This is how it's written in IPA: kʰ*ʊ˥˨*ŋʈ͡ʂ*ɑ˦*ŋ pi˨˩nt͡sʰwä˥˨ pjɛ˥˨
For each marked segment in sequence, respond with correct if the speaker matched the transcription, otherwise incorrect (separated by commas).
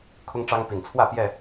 incorrect, correct